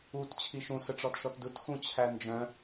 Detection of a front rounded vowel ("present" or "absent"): present